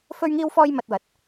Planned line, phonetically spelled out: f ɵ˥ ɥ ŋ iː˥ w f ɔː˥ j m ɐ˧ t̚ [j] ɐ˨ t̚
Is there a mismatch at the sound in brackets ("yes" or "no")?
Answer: yes